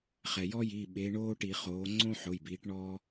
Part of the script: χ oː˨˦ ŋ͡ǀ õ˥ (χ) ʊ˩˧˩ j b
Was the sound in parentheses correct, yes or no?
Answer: no